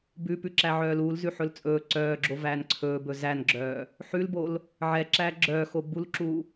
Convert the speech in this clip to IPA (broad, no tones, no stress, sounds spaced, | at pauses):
b ʉ p ʉ ǁ æ ʕ œː l u l z ʉ ħ ɵ l t͡sʼ ɵː ǀ œː ɡ͡ǁ o v æː n ǀʰ ɵː b ɵ z æ n ɡ͡ǁ œː | ħ ʉ l b o l | ʕ ɛ ǁ æː ɡ͡ǁ œː x o b u l ǁ uː